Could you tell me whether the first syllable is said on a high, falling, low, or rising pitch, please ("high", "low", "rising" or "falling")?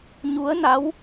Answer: rising